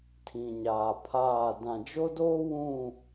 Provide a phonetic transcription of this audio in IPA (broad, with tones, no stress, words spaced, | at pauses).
tʰĩ˨ɲaː˨pʰaː˦˨ dã˨d͡ʒo˦doː˦ wũ˦˨